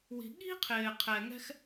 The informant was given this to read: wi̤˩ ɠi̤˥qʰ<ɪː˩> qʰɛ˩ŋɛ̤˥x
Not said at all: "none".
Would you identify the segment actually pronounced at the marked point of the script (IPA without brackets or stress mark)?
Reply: ɪː˩